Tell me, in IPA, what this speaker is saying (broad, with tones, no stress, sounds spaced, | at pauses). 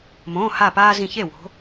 m õː˩˧˩ h a˧˩ p aː˦ z ĩ˧˩ ç e˥˩ w o̤˨˦